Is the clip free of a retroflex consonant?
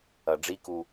no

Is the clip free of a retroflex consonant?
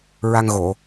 yes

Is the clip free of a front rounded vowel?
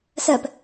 yes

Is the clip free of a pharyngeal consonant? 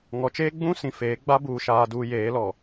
yes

